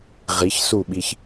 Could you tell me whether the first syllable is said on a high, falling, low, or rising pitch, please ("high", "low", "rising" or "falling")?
rising